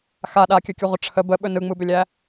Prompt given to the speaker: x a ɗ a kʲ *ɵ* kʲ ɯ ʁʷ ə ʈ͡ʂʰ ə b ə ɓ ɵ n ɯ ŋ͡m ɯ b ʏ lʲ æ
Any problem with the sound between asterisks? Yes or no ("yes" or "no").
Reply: no